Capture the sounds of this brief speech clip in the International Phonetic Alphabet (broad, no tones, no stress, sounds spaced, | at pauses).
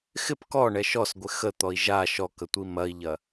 x ɪ p k ɔ ɳ ɛ ʃ ɔ s ɡʷ ɪ x ə t̪ ɔ i̯ ʒ a ʃ ɔ k ə tʷ i m ɐ i̯ ʎ ɐ